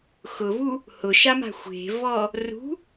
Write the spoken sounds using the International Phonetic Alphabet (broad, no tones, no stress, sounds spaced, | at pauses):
x ʊ v u | h ʊ ʃ a m a̤ xʷ e̤ v ɔ | r ṳ